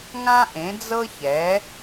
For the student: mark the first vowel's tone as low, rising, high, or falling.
high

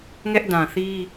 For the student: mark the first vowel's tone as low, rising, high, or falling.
high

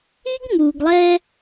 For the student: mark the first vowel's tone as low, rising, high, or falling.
high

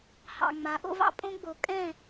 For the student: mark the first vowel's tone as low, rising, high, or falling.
low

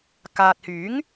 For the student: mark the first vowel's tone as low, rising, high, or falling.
low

